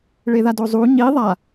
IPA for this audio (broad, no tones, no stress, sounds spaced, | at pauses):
ɭ e ð a d o zˤ u ɲ i ðˤ a